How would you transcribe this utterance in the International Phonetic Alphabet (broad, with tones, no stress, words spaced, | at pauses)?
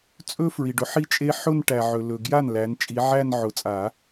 t͡sʼɵ˥ fɹi˨ɖʊ˥ ħi˥˧ t͡ʃʼe˥ ħʊ˥˧nʈæ˨ ʕɵ˨lɵ˨ ɡja˥˩n læ˨˦n t͡ʃʼi˨˦ ʕæ˥˧n ʕʊ˨˩˦t͡sʼa˨˩˦